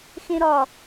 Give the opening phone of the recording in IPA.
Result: x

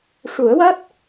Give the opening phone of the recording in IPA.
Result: ʂ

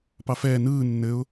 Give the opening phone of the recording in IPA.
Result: p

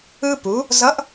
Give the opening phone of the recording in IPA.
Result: ɯ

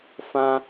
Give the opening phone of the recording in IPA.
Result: f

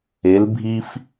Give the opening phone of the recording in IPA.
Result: e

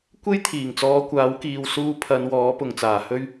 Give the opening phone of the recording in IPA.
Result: kʷ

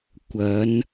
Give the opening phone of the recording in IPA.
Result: kʷ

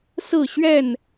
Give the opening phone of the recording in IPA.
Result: s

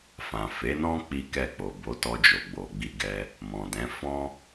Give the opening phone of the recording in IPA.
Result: f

